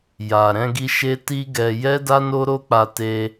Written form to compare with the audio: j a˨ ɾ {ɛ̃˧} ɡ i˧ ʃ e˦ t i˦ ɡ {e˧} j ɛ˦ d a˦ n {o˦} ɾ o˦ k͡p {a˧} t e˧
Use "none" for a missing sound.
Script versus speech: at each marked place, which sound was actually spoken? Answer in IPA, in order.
ɛ̃˧, ɛ˧, o˦, a˧

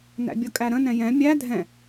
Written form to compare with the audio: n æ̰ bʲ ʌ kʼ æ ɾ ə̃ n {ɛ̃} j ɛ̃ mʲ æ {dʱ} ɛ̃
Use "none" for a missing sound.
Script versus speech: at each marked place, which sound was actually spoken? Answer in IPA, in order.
ɛ̃, dʱ

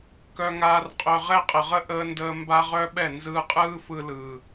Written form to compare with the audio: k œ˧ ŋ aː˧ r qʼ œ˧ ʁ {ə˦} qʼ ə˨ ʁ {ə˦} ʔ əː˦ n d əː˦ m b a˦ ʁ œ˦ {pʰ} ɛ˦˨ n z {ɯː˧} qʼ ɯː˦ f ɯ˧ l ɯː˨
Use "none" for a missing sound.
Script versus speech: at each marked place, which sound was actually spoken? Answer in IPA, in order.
ɛ˦, ə˦, ɓ, ɯː˧

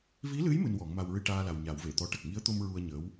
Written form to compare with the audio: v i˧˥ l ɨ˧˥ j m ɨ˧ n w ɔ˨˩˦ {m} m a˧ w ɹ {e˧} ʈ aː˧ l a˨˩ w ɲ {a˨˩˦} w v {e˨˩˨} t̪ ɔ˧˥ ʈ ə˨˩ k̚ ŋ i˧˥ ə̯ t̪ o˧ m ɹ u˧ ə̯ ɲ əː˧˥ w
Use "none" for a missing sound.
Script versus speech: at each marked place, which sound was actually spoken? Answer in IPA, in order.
ŋ, ɨ˧, a˨˩˦, e˨˩˨

